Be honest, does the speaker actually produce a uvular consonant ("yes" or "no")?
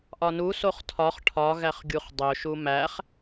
yes